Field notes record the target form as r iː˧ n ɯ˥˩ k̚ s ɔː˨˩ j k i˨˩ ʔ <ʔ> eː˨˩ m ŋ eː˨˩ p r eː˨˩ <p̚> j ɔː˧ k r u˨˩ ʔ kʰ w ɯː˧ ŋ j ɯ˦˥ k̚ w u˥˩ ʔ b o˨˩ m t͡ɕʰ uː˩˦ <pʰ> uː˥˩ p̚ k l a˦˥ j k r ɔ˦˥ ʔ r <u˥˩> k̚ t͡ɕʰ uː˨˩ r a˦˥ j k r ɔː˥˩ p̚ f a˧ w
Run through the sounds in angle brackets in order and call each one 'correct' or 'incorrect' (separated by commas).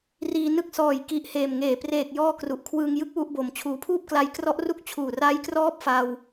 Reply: incorrect, incorrect, correct, correct